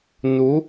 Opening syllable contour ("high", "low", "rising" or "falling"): rising